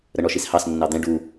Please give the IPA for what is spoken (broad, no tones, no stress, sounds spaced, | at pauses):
ɾ ə ɳ ɔ ʃ i s h ɑ s nː ɑ d̪ ɛ̃ ɖ u